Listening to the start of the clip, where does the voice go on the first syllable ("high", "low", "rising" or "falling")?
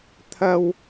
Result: high